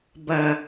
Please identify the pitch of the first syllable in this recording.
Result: low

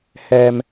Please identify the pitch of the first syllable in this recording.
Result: low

